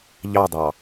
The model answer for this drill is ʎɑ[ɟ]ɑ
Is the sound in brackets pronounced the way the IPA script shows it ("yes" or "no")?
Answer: no